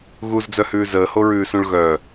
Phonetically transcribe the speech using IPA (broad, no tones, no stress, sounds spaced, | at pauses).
ɣ u z d͡z œ h ʉː z əː h o ɹ ʉː s ũ ɭ ɣ œ